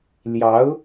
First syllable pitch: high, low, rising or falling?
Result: rising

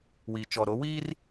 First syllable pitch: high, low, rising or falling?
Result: low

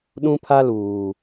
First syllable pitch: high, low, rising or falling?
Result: high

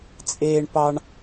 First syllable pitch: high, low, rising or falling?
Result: high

